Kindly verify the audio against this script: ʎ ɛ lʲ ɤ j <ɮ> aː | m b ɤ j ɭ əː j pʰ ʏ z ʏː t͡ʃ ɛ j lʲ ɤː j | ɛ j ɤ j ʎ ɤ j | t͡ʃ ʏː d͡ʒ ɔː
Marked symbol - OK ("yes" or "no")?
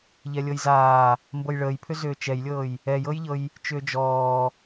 no